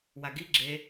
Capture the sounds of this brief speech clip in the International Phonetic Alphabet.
w a ɡ i ɡ͡ǁ e

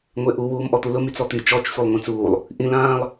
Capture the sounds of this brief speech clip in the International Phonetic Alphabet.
ŋʷ e ʔ u w uː m ʔ ɔ t̪ u l ʊ m y t͡s ɔ t̪ y t͡ʃ ɔ t͡ʃ sʷ i lˠ ŋʷ ĩ t͡s uː lˠ | ʔ ĩ l ãː lˠ

